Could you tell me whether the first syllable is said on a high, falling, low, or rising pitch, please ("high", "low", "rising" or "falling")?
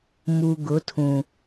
low